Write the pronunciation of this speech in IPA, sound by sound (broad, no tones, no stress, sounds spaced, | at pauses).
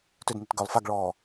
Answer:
t ø d n i t ɡ œ lˠ f a ɡ ɭ ɔː